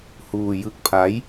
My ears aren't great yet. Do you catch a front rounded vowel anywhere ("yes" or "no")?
no